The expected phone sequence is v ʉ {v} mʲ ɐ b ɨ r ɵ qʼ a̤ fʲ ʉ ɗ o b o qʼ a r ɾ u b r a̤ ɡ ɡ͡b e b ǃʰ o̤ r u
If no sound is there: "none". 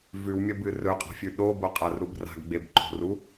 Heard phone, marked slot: w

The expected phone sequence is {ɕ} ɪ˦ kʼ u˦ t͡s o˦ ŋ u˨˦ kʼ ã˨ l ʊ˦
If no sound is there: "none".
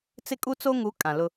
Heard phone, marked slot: t͡s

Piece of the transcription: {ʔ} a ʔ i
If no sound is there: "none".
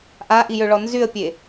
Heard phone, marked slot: ʔ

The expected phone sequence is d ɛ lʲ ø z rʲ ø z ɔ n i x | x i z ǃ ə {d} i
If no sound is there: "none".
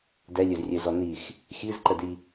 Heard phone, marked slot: d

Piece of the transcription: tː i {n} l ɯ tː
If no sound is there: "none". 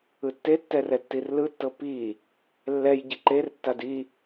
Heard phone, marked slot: r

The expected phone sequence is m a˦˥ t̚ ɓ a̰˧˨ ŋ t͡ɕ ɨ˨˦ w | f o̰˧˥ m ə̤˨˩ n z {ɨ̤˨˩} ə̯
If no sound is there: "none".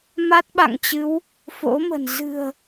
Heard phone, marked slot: ɨ̤˨˩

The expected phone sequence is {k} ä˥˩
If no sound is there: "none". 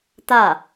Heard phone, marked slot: t̪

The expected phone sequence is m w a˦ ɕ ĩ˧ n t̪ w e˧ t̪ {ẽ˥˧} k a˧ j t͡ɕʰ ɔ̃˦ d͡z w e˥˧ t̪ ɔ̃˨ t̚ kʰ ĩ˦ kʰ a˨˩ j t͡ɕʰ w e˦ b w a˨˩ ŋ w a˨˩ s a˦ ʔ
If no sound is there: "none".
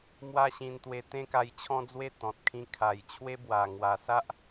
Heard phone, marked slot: ẽ˦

